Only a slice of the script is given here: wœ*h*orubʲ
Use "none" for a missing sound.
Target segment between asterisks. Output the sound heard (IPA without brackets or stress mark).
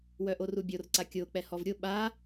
ʔ